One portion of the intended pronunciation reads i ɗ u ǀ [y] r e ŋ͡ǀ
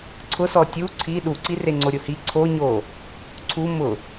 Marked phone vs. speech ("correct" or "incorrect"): incorrect